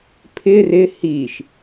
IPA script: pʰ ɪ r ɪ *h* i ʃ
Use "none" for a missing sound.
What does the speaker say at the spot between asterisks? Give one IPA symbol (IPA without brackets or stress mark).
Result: h